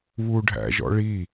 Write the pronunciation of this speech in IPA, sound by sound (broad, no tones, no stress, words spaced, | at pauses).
βuɖʱæ̰ʒɔ̰ɭi